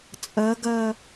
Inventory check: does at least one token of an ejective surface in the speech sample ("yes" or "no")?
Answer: yes